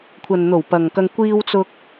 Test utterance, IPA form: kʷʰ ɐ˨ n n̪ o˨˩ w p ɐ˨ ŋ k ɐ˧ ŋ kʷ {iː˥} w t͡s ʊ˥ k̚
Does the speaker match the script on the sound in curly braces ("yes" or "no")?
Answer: yes